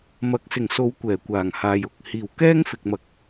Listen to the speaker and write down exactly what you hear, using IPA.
m ɐ˨ k̚ s ɪ˨˩ ŋ s o˨˧ w kʷ ɛː˨˩ kʷ aː˨˩ ŋ h aː˨ j ʊ˨ k̚ h iː˨˩ w k ɛː˥ ŋ f ɪ˨ k̚ m ɐ˨ k̚

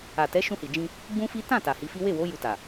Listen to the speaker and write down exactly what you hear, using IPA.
a˨ t ɛ˨˦ ʃ ũ˧ h i˨ d͡ʒ ĩ˧ | ɡ͡b ũ˦ f i˦ t ã˦˨ t a˨ h i˨˦ f i˦ w e˦˨ w o˨˦ j u˧ t a˨

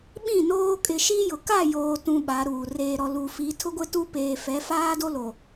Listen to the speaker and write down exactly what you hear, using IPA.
ɓ ĩ˦˨ n oː˦ kʼ ɪ˨ ʃ i˦ j ʊ˨ k a˦˨ j oː˨ t ũ˨ ɓ a˨˦ ɾ uː˨ r eː˨ ɾ ɔ˨ l u˨ f i˨˦ tʰ ʊ˦ ɡʷ ɪ˦ t u˦ p eː˨ f ɛ˨˦ f aː˦ d o˦ l o˨

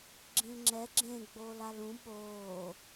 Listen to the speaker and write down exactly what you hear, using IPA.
ɡ͡ǁ ĩ l ŋ͡ǁ ɛ ɡ͡ǁ ẽ ɡ͡b oː l a l ũ ɓ oː

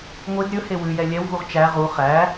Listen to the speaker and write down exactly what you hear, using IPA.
ŋʷ e d ɾʲ ɵ h e w ʉ j ɛ lʲ ɛ w v u ʁ t͡ʃ æ ʁ u χ æ

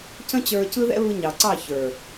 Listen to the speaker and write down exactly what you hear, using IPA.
c ə̃˦ t͡ɕ ə˞˧ c ɯ˦ ð ɛ̰˦ β ɯ˧ ɲ ɑ˨ ǀ ɑ˦˨ ç ə˞˨

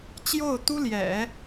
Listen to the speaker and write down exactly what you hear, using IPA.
t͡ɕ j o˥˩ ʊ̯ t̪ u˥ l j ɛ̰˨˩˦

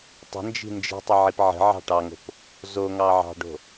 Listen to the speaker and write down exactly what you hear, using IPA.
tˤ ə̤ n d͡ʒ i̤ n d͡ʒ i̤ tˤ ə ʕ i p ʕ ə̤ ʕ ɑ̤ ʈ ɑ ŋ o̤ p | z o ŋ ɑ ʕ ɑ̤ ɖ o̤

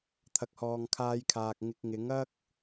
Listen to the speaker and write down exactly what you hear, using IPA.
t̪ʰ ɐ˨ k̚ h ɔː˨ ŋ kʰ aː˧ j kʰ aː˨ k̚ ŋ ɪ˧ k̚ ŋ ɪ˨˥ ŋ ɐ˥ k̚

